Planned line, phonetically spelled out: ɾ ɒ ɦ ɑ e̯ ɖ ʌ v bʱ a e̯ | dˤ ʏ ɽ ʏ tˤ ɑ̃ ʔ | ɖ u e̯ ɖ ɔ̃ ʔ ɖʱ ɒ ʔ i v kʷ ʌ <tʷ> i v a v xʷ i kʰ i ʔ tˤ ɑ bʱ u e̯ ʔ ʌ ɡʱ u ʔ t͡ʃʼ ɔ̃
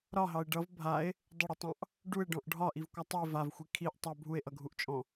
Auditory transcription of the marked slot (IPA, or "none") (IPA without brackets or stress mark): tˤ